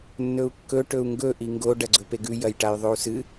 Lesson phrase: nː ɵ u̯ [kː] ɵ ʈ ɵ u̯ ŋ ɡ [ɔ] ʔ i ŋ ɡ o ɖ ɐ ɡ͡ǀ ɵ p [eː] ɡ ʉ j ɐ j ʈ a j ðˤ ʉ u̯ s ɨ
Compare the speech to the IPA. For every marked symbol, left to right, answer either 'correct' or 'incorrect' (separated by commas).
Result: correct, incorrect, incorrect